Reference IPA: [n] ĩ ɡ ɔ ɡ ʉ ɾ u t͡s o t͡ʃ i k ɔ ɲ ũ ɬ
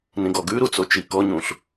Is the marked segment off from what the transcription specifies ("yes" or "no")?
no